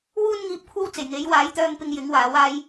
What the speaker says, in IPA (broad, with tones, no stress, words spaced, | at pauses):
wuː˥nŋiː˧p̚kʷʰɐ˥wt͡se˨˩j ŋe˨˥j waː˨˥jt̪œː˧ŋpɪ˧ŋ jɪ˨˥ŋwaː˨˥w aː˥j